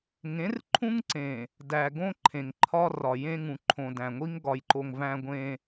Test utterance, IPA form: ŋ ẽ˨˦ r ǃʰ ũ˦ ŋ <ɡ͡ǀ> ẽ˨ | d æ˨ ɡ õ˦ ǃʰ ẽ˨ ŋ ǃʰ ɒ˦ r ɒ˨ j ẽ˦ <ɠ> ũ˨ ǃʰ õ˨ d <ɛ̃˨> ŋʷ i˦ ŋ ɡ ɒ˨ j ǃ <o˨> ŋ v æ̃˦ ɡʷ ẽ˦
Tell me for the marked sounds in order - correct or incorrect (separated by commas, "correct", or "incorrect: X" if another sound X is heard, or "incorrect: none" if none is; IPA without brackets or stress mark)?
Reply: incorrect: ǀ, incorrect: ŋ, incorrect: æ̃˨, correct